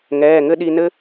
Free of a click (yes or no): yes